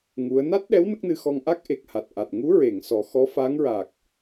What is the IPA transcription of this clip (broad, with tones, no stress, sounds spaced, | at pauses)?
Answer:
ŋ u˧˥ ə̯ n a˦˥ t̚ ɗ ɛ˧˥ w n ə˦˥ k̚ n ɨ˧ x ɔ˧ ŋ ʔ a˦˥ k̚ ʔ e˨˩ k̚ h a˨˩ t̚ ʔ a˨˩ t̚ ŋ u˧˥ ɹ e˨˩˨ ŋ s ɔ˨˩˦ x ɔ˧˥ f aː˧˥ ŋ ɹ aː˨˩ k̚